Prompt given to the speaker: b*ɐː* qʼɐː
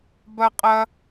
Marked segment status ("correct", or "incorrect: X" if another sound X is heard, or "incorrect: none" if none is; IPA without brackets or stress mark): incorrect: ɐ